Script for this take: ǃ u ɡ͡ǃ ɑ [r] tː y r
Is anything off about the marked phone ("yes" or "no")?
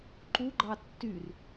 yes